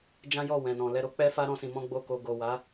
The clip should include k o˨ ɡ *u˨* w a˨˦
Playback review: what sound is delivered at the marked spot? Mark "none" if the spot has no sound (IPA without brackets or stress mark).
o˨